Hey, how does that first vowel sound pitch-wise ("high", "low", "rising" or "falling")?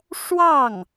falling